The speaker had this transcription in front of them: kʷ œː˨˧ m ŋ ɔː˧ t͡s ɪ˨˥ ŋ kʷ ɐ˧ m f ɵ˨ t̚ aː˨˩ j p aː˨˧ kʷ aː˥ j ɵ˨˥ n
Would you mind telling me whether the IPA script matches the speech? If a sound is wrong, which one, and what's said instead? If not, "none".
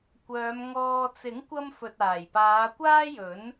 none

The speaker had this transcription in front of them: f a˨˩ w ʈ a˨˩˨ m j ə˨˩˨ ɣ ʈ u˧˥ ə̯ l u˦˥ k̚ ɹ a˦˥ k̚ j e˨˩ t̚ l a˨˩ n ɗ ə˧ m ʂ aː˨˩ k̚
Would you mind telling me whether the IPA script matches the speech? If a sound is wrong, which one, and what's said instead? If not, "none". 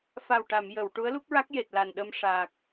ɣ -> w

